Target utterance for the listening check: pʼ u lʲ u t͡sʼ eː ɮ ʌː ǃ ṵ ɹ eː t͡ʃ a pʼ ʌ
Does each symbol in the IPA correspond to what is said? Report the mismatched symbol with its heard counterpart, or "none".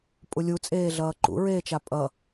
none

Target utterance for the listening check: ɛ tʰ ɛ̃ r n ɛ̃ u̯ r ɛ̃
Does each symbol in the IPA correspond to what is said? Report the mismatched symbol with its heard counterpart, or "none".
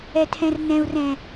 none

